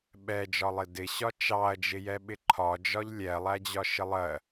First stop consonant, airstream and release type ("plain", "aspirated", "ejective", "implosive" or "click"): implosive